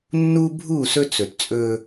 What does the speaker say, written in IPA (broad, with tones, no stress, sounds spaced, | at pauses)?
nː u˦ bʱ u˦˨ s ɵ˦ t͡s ɵ˨ t t͡sʼ ɵ˦